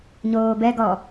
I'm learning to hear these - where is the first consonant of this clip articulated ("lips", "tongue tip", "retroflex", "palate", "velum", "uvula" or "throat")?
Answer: palate